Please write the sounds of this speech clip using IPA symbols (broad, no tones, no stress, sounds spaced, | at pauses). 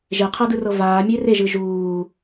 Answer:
ʒ e qʰ ɤ d ɯ r ɤ v aː mʲ e r e ʒ ɯ ʒ uː